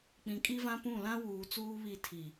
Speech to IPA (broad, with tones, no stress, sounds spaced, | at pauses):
k͡p ĩ˨ kʼ i˦ v ã˦ p ũ˦˨ l ã˦ w uː˨ t͡s uː˦ β i˦˨ tʰ i˨